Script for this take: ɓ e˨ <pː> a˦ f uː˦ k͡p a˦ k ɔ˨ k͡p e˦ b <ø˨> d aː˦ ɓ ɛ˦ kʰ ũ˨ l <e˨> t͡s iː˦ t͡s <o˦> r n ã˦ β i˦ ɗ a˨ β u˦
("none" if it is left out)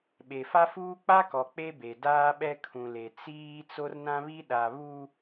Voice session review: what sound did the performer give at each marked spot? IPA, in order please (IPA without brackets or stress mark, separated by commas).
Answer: f, e˨, e˨, o˦